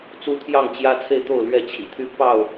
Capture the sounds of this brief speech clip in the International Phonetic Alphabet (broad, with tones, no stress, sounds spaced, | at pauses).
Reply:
t͡s u˦ t̪ʰ j ɑ˥˨ ŋ t͡ɕ j ä˦ t͡sʰ e˥˨ ɪ̯ t̪ o˥˨ ʊ̯ l ɥ ɛ˥˨ t͡ɕʰ ḭ˨˩ t̪ʰ y˦ p ɑ˥˨ ʊ̯